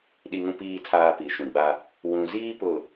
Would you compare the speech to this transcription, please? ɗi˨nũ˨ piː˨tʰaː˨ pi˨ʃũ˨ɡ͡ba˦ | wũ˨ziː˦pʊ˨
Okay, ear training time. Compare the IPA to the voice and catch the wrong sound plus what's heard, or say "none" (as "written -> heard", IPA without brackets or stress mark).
n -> ŋ